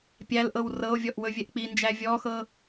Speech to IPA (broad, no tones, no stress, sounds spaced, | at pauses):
pʲ æ l ʔ ɤ w r ɤ o̯ vʲ ɔ ʔ w ɵ vʲ ɛ ʔ k͡p i n d͡ʒ æ vʲ ɔ x ɤ